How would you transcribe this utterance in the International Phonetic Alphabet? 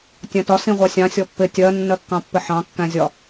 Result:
tʲ æ̃ t ɒ s ĩ ʁʷ ɑ sʲ ɑ̃ sʲ ɔ pː ɪ tʲ ɜ nː ɜ kː ɑ̃ pː ɪ ħ ɑ̃ kː æ̃ zʲ ɒ

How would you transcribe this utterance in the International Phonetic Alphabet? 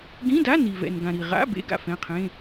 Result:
ɡ ĩ˧˥˧ d a˧˥˧ n i˨ v ɛ̰˨ n ɡ ã˨ ɾ i˨ ʁ a̰˧˥˧ b ḛ˧˥˧ ɡ a̰˨ f ɛ̃˧˥˧ qʰ ẽ˧˥˧

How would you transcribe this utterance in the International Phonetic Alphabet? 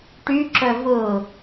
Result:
ʈ y ǁ œ v ʊ

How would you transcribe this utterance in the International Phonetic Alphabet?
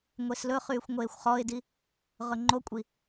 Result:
ŋʷ e s l ɵ χ yː xʷ ŋʷ eː xʷ χ ɔ ɪ̯ d i | ʁ ɵ ŋ͡ǃ o kʷʼ i

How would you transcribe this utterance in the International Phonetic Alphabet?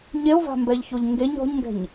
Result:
ɲ e o̯ v a̤ m b ɛ ʎ ç o ʎ ŋ ɡ e ɲ ɔ̤ ɲ ŋ ɡ ɛ̤ ɲ

